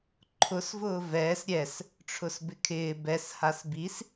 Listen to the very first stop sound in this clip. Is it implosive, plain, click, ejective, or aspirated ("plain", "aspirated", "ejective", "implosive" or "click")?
click